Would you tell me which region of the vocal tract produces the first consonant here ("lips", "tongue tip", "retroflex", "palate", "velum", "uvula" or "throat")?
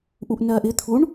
throat